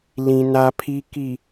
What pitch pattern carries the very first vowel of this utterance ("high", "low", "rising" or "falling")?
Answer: low